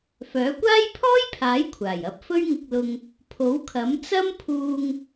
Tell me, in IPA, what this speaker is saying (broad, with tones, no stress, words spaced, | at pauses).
fœː˨˥kʷaː˥j pʰɔː˥jpʰaː˨˥jkʷʰaː˨˩j ɐ˨˥p̚fɵ˥ɥŋɪ˧k̚lʊ˧ŋ | pʰo˨˥wkʰɐ˨˥m t͡sɐ˥mpʰuː˧ŋ